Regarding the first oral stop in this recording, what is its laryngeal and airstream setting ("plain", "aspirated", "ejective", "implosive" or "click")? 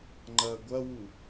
click